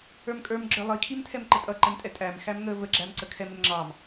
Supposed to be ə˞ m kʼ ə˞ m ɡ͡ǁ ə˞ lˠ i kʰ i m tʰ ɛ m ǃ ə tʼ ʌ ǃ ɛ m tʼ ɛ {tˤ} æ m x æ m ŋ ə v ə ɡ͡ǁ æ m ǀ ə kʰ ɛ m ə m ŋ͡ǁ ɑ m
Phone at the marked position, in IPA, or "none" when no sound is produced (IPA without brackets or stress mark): tʼ